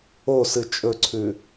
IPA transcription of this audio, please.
o s ɨ t͡ʃʼ ɵ ǀʰ ʉ

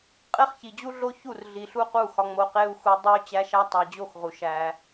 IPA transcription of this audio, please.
qʼ e˦ χ ç i˨ d͡ʑ u˦ ɮ o˦ ç u˦˨ r ɮ i˨ ɬ u˦ q u˦˨ x ɒ˧ ŋ͡m o˧ q e˦ u̯ x u˧ dˤ u˦ y̯ t͡ɕ æ˦ ʃ æ˦ tˤ æ˧ d͡ʑ o˦˨ x ʁ u˨ ʃ æ˧

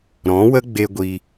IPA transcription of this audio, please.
ɾ ɔ̃˨˦ w ə˦ ɡ͡b e˧ ɡʷ i˧

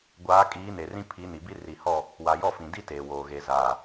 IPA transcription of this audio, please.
ɡʷ aː˨˦ kʼ iː˨˦ n e˨ r ĩ˦ pʰ i˨˦ n i˨ b i˦ r i˨ h ɔ˦˨ | w a˨ j ɔ˦˨ f ĩ˨ d i˦ t eː˨ w oː˨ ɣ e˨ z aː˨

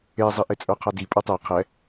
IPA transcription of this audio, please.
e zˤ i ʔ e t͡sʼ ə˞ qʰ a d i pʼ u tˤ e qʰ ɛ

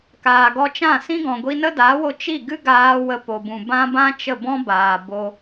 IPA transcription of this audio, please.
k aː˨ ɡ ɔ˧ t͡ʃ ã˦˨ s ĩ˦ ɡ ɔ̃˨ ɡʷ i˧ n ə˦ d aː˨˦ w o˧ t͡ʃ i˦˨ ɡ ɨ˦ ɡ aː˧ w ə˧ p o˨ b ũ˨ b ã˦ b ã˦ t͡ʃ ə˦˨ b ɔ̃˦ b aː˨ b o˧

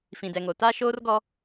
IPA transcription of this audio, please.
f ĩ˨ d ɛ˨ ŋ o˨ t a˦ ʃ oː˦ r ɡ ɔ˦

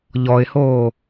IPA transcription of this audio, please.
ʎ ɔ ɪ̯ h oː

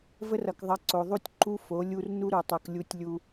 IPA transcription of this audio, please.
v ə˦ r ʌ˨ k ðˤ ʌ˨˦ ǀ o˨ ðˤ u˦ tʲ ǃ u˦ f o˨˦ lʲ u˦ r n u˦ ɾ u˨ tˤ u˨ k lʲ u˦ tʲ lʲ u˦

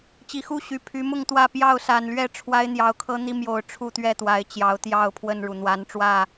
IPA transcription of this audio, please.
t͡ɕ i˨˩ x u˥˨ ɕ y˨˩ pʰ y˨˦ m ʊ˥˨ ŋ t̪ w ä˥˨ p j ɑ˥˨ ʊ̯ s a˨˩ n l ɥ ɛ˥˨ ʈ͡ʂʰ w a˦ ɪ̯ n̪ j ɑ˨˦ ʊ̯ kʰ ɤ˦ n̪ i˦ m j o˨˩ ʊ̯ ʈ͡ʂʰ u˥˨ t̪ ɥ ɛ˥˨ t̪ w a˨˦ ɪ̯ t͡ɕ j ɑ˨˦ ʊ̯ t̪ j ɑ˥˨ ʊ̯ pʰ w ə˥˨ n ɻ u˩ n̪ w a˨˦ n ʈ͡ʂ w ä˥˨

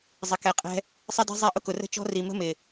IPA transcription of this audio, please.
zˤ ɪ˨ k ɛ˨ qʼ ɛ̤˧ | sˤ ɪ˦ d ɛ̤˦ zˤ i˧ ʔ ʊ˦ k ʊ˨ r ə̤˦ t͡ʃ ɔ̤˦ r i˨ m ə̤˦ m ɪ˨

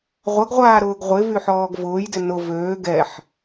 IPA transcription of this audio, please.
ʁʷ ɐ ɡ ʁʷ aː ɾ ʊː ɡ ʁʷ ɪ v y ħ ɔː ɡ v ʊː j d ɪ n ʊ v øː ɡ ɛ ħ

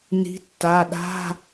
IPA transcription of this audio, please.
n i̤˨˦ tː a˩˧˩ ɗ a̤˧˥˧

